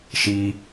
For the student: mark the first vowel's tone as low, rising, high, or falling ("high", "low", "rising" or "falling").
high